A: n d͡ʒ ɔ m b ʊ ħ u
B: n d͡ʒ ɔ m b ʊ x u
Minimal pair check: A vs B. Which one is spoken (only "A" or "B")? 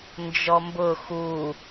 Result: B